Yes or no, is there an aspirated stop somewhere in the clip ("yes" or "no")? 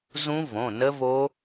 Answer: no